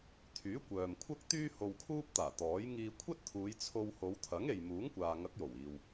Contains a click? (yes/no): no